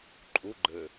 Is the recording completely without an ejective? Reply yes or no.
no